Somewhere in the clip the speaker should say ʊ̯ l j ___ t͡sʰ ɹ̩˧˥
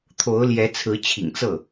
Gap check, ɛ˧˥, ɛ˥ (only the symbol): ɛ˧˥